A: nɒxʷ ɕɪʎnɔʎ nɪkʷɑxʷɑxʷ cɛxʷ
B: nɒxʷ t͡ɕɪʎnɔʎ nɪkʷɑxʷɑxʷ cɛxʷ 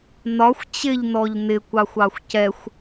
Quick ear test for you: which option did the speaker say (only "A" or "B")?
B